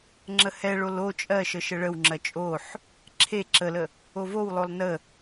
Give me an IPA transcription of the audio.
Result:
ŋ͡ǁəhɛɭol o t͡ʃʼɜʃə ʃəɭəwŋ͡ǁɜ t͡ʃʼoħ | ǁʰe ǁələ | ovowlˠolˠ nə

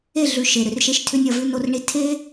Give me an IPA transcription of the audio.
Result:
e˦˨ɮʉ˨ ʃe˨ɾʏ˨rʃe˦ʃ tʰʏ˦nʲɒ˦˨vʉ˦ no˧rɳi˧ tʰe˦

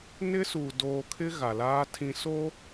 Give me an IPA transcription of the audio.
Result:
nɪ˦suː˨ doː˨kʰɪ˦ ɣa˨laː˦tʰĩ˦ so˦

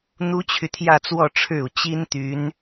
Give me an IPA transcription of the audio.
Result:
n̪u˥t͡ɕʰy˨t̪ʰjä˥˧t͡swɔ˥˧ ʈ͡ʂʰɻ̩˥˩u˩ t͡ɕi˥nt̪y˧˥n

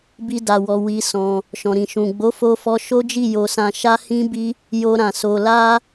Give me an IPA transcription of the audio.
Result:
bi˧da˨wɔ˨ wi˧ sɔ̃˧ | ʃɔ̃˨ɾĩ˨ ʃũ˨ ɡ͡bo˨˦fo˧fɔ˧ ʃo˦d͡ʒi˦˨ jo˧sã˧ʃa˦ hĩ˦bi˦ | jo˧ ɾã˨so˧ la˦

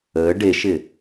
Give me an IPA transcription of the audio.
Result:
əː ɖeʃɪ

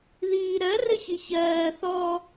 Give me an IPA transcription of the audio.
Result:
ðiːɾɜ rɘçiçɜː θɔ

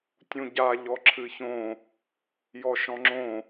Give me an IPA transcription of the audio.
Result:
tʲũɟa ʎɔǁʰɨçõ | jɔʃɔ̃ŋ͡ǁõ

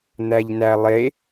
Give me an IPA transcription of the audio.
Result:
n̪æʎnælˠe

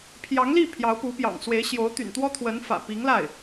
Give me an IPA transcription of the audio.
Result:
pʰjɑ˧˥ŋli˥˩ pʰjɑ˧˥ʊ̯pu˧˥pjɑ̰˨˩ŋ swe˧˥ɪ̯ɕjo˧˥ʊ̯ t̪y̰˨˩nt̪wɔ˥t̪ʰwə˧˥n fä̰˨˩ pi˧˥ŋla˥˩ɪ̯

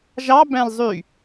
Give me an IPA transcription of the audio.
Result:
ʒɑ bæ̃lzˤy

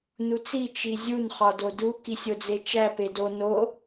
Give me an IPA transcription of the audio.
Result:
nut͡si t͡ʃizʲun χɒdodu kisʲod͡zet͡ʃæ pedo no

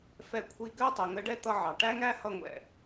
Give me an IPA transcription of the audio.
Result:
fɛ˧kʷʰi˧ɡɜ˥ tˤə˩˧ŋə˧˥ɖɛ˥ t̪ʌ˧ʕɑ˩ ʈæ˥ŋæ˥ hʌ˧ŋʷɛ̰˩

